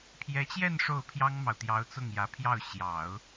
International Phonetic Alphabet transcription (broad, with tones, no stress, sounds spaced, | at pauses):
pʰ j ɛ˧˥ t͡ɕ j ɛ˥˧ n ʂ o˥˩ ʊ̯ pʰ j ɑ˥ ŋ m ɑ˨ ʊ̯ t̪ j ɑ˧˥ ʊ̯ t͡s ʊ˥˩ ŋ j ä˧˥ pʰ j ɑ˥˩ ʊ̯ ɕ j ɑ˨˩˦ ʊ̯